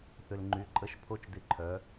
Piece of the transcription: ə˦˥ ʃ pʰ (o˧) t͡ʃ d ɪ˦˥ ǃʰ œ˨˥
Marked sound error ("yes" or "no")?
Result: yes